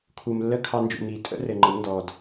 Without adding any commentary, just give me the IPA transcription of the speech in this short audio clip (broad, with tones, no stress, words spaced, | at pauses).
kʰu˨m lːə˦kʰɑ˧nd͡ʒṵ˨ mi˨tʼə̰˦ rɘ˨ŋ͡ǃə˨˦m ndɔ˨d